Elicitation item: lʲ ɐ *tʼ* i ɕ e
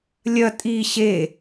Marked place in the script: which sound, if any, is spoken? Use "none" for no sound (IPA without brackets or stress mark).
tʼ